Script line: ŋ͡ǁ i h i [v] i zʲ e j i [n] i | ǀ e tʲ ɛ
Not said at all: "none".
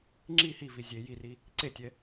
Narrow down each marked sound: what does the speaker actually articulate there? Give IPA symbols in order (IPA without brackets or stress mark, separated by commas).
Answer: v, r